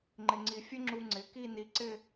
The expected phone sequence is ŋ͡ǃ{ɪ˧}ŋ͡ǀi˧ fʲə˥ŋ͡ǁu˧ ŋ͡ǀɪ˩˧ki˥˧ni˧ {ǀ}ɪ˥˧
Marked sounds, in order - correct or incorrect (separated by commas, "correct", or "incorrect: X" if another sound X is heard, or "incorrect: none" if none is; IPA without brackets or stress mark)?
correct, correct